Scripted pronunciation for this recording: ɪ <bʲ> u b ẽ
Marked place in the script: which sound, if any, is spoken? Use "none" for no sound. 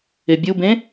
bʲ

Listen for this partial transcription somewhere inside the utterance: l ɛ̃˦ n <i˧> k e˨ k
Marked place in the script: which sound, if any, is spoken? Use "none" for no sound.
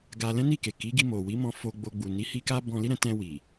i˦˨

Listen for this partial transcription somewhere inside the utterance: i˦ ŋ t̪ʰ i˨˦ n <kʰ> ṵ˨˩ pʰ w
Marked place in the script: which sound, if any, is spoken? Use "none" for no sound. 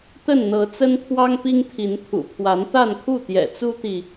t̪ʰ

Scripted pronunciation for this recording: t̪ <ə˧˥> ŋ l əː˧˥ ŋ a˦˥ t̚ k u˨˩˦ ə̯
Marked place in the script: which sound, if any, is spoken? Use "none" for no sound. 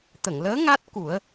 ə˨˩˨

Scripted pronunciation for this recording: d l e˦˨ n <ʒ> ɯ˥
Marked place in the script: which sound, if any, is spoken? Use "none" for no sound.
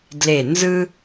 z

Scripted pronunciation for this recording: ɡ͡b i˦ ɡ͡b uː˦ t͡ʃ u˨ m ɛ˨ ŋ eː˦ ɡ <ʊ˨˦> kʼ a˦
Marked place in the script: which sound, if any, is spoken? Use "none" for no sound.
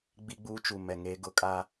ʊ˨˦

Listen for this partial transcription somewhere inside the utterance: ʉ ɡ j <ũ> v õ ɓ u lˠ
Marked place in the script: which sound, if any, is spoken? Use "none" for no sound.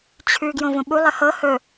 õ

